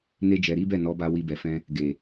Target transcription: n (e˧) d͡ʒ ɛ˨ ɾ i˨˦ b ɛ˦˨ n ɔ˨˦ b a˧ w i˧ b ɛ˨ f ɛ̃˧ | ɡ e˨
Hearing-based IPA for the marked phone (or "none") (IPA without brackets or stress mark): e˧